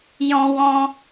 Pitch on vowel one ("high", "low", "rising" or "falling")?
high